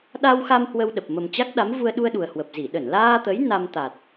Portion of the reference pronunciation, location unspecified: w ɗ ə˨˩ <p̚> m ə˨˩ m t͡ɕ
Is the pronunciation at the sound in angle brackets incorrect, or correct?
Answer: correct